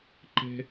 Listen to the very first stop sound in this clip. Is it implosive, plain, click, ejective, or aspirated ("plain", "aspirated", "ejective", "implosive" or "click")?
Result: click